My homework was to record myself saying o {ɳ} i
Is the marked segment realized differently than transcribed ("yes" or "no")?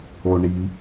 no